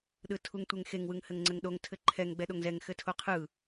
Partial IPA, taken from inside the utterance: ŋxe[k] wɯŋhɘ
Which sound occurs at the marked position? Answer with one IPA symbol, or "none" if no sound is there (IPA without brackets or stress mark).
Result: ŋ